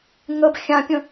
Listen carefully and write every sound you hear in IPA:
ŋ ə b xʲ ã pʲ ə̃

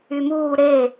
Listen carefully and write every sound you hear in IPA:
y m uː ɾ e

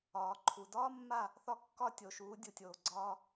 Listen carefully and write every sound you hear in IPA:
ɒː˨ ǃʰ u˨ d ɒː˦ mː a˦˨ | θ ɒ˦ kː ɒ˦ tʲ o˨ ʃ uː˨˦ dʲ u˨ tʲ oː˨ ɡ͡ǀ ɒː˦

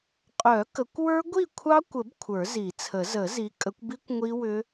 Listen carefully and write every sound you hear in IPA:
qʼ œ˨˩˦ k ə˨˦ kʷ w ə˞˦˥ ɡʷ i˥˨ kʷʰ ɑ˦˥ kʷ ə˨˩˦ b kʷʰ ə˞˨˩˦ z i˨˩˦ t͡sʰ ə˨˩˦ z ə˨˩˦ z i˨˦ kʼ ə˨˦ kʷ b i˦˥ kʷ ŋʷ i˦˥ w ʏ˦˥

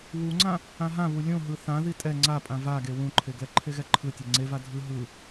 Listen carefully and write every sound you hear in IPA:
w u ŋ͡ǀ ã | ã ɦ ã β u lʲ õ ɦ ɯ θ ã ð i tʼ ɛ ŋ͡ǀ a pʼ ã v a ɡ e w ũ ǃʰ e ɡ l ɛ ǃʰ e ɣ ɛ ǃʰ ɯ tʲ ɛ ŋ͡ǀ e v a dʱ ɯ ɦ ɯ

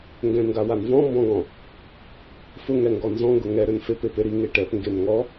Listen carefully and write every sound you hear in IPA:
ŋ ɡ ɛ̃ n ɡ a w a n v ɔ̃ m b ɔ̃ ɡ ɔ̃ | f ʊ ŋ ɛ ŋ ɡ ɔ n z ɔ̃ ŋ ɡ ʊ ŋ ɛ ɾ ø n f e p e p e ɾ i ŋ e ʈ ɛ p ŋ ɡ e n ŋ ɔ

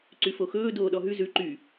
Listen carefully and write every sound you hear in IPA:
ǀ y f o x ɵː d oː ɗ ɔ ɦ ʉ z ʉ ǃ y

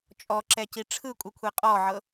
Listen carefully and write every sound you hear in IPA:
t͡ʃʼ ɔ ǁ ɛ c i ʈ͡ʂʰ ɯ kʷʼ ɯ kʷʰ e qʼ ɔ ʕ ɤ

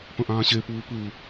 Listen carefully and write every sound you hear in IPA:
p ə̃ ʔ ãː ɕ e p uː p u

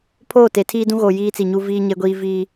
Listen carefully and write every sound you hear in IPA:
pʰ oː˦˨ t e˨˦ tʰ iː˦ d ũ˦ ɣ oː˨ j iː˦ t͡s i˨ ɲ u˦ v iː˦ ɲ e˦ ɡʷ iː˦ v iː˦

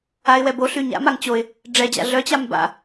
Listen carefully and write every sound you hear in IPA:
a ɪ̯ w ɛ b o ɬ y ɲ a̰ m a ŋ t͡ɕ o ɪ̯ | ɖ͡ʐ ɛ d͡ʑ a̰ ɮ œ t͡ɕ a m b a̰

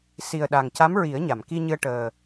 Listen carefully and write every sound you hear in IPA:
s i˨˩ ə̯ ɗ a˨˩ ŋ c a˧˥ m ɹ i˨˩˦ ə̯ ɲ a˨˩˨ m k i˧ ɲ ɨ˧ ə̯ ʈ əː˨˩

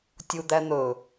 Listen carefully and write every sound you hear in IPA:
tʲ u d̪ æ n̪ ɵ

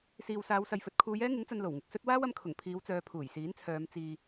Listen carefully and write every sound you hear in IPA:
s iː˨ w s aː˨˧ w s ɐ˨ j f ɵ˨ t̚ kʰ uː˨˧ j ɛː˥ ŋ ɪ˨˥ ŋ t͡s ɐ˨ n l o˨˩ w ŋ ɪ˨ k̚ s ɵ˥ t̚ w aː˥ w ɐ˧ m kʰ ʊ˨˩ ŋ pʰ iː˨˧ w t͡s œː˨ pʰ uː˨˩ j s iː˨˥ n t͡sʰ œː˨˧ m t͡s iː˨

